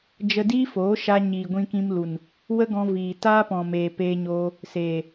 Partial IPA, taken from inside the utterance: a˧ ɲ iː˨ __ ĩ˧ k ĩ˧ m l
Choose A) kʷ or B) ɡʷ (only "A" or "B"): B